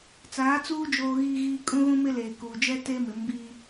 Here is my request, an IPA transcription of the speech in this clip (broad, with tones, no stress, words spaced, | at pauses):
t͡saː˨˦t͡suː˦ d͡ʒoː˦ɣiː˦ɣiː˦ kʼũ˦ɣũ˦mɪ˦leː˨ kuː˨d͡ʒɛ˦ te˦ mɪ˨˦mbiː˦